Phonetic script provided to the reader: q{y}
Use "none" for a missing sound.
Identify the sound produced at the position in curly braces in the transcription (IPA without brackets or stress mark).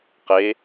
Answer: e